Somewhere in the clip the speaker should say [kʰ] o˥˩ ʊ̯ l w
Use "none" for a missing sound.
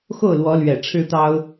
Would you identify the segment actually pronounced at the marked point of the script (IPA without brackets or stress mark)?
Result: x